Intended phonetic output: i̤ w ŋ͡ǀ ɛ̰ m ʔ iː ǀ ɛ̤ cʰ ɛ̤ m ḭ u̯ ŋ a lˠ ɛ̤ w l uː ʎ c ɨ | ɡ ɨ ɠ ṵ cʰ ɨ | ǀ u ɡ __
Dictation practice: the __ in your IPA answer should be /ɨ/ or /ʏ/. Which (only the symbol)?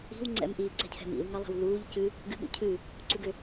ʏ